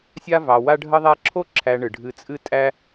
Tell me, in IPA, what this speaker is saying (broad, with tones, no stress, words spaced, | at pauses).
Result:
sʲa˥ vɑ˨wa˥ ɖʱə˦ðˤæ˦ǁʰo˥ǁʰæ˨ ɳɨ˩ɖʱɨ˨t͡sʼɨ˦ tʼæ˦